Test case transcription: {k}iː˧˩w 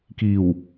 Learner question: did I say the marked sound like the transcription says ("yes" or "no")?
yes